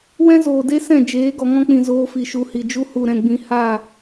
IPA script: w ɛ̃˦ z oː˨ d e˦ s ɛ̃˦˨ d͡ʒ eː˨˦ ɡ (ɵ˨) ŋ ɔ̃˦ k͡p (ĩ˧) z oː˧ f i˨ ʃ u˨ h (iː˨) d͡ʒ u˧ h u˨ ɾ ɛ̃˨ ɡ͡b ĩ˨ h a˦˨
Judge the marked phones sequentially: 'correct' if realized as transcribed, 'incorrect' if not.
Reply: incorrect: ɔ˨, incorrect: ĩ˨, incorrect: i˨

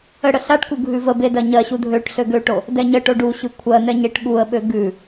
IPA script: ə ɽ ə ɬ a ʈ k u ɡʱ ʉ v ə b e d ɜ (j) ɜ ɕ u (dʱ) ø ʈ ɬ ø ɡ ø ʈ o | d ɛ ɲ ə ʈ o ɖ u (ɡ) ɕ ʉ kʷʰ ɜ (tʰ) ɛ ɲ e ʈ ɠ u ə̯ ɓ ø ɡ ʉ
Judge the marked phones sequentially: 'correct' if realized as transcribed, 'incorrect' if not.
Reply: incorrect: ɲ, correct, incorrect: none, incorrect: n̪

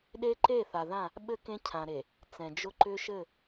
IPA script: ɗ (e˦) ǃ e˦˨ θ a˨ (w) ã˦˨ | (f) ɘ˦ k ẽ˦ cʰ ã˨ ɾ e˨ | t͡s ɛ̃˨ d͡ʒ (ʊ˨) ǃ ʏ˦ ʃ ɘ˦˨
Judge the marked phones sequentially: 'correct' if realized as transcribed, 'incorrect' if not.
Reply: correct, incorrect: ð, incorrect: ɓ, incorrect: ʊ˦

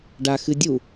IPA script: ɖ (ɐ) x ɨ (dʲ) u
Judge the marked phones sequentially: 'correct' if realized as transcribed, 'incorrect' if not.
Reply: incorrect: a, correct

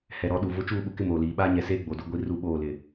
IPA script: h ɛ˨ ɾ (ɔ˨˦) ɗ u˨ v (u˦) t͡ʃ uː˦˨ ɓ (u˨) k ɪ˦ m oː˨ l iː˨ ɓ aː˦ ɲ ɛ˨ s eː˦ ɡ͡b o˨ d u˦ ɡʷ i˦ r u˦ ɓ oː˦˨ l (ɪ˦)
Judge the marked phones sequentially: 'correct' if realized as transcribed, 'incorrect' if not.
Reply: correct, incorrect: ʊ˦, correct, incorrect: ɪ˨

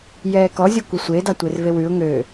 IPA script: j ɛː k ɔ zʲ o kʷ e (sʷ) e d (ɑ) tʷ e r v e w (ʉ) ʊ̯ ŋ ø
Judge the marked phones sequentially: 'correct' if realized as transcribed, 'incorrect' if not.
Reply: correct, correct, correct

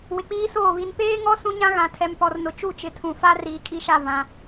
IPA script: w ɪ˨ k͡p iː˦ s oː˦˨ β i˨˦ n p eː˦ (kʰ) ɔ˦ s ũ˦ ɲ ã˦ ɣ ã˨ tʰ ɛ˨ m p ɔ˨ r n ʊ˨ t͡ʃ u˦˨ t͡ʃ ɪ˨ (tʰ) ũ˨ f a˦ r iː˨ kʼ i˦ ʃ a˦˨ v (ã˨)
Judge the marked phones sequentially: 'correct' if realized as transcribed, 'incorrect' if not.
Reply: incorrect: ŋ, correct, correct

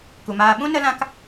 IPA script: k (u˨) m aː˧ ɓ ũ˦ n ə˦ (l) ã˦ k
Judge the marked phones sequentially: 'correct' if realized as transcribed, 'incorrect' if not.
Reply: correct, correct

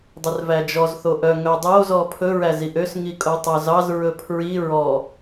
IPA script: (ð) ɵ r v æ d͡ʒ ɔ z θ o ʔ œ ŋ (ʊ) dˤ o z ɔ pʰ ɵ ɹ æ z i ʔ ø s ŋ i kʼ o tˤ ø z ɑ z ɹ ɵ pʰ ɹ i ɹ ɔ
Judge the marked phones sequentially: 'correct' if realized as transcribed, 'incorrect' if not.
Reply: incorrect: dˤ, incorrect: ɵ

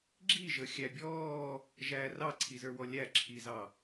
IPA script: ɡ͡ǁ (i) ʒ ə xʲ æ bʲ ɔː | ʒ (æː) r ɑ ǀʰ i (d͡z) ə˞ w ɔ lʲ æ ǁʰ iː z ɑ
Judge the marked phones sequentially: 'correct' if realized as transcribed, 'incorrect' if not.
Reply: correct, correct, incorrect: z

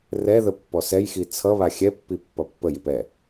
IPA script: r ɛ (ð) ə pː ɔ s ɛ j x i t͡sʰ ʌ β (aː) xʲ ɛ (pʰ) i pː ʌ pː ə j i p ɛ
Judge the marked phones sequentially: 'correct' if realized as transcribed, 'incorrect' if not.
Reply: correct, incorrect: a, incorrect: pː

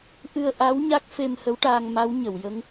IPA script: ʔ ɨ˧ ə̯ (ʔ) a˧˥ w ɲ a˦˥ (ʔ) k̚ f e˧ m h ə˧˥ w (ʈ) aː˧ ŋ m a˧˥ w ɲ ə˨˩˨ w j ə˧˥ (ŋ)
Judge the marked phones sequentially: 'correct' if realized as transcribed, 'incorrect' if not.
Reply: correct, incorrect: none, correct, correct

